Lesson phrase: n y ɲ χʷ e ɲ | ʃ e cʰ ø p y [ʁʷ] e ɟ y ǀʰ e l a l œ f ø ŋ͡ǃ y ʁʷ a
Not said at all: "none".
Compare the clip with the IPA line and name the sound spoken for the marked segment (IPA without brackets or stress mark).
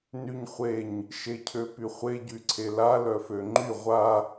χʷ